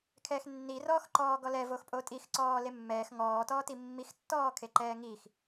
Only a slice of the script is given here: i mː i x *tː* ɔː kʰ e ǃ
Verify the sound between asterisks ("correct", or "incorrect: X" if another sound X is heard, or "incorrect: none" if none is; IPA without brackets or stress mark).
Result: correct